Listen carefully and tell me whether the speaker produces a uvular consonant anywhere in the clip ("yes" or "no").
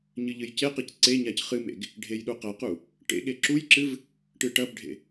yes